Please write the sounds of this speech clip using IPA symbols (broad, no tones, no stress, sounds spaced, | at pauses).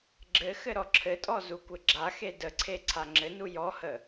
ɡ͡ǁ ɘ x ɘ ɾ ɔ ǁʰ ɘ tʼ ɔ z u kʷ ɘ ɡ͡ǁ a x e d ə ǀʰ e ǀʰ a ŋ͡ǁ ɘ n u j ɔ h ə